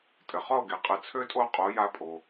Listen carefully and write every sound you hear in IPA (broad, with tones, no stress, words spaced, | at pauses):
tʼɘ˩χɔ˥˩o̯ɡe˩qʼɘ˩˥ t͡sʰø˥tʼo˥˩ qʼo˩˥ja˧ pʼo˩